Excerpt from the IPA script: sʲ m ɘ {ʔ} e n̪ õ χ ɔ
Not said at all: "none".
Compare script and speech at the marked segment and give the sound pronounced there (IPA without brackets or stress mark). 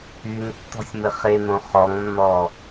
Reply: χ